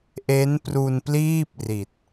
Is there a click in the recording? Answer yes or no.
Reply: no